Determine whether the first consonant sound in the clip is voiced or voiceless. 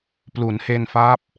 voiceless